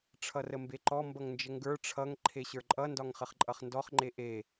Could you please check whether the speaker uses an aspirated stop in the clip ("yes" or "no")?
yes